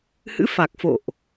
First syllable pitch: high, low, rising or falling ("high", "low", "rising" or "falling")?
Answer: rising